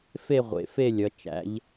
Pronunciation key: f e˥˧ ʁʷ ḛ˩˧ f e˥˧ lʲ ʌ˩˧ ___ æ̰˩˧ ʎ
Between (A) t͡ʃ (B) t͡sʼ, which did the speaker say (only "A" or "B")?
A